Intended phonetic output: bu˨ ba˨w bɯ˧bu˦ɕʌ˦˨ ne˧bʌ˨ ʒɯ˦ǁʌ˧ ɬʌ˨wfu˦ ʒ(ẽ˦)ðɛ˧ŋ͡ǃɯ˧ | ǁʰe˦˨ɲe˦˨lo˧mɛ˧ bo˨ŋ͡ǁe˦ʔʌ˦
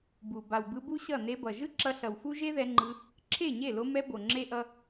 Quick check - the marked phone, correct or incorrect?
incorrect